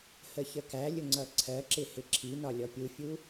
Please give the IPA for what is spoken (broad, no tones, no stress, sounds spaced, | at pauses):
h ə ç ə k æ lʲ ʊ ŋ͡ǀ ʌ ǀʰ ɜ ǁ ɪ h ɪ ǁʰ i n ɒ lʲ ɔ pʲ u fʲ u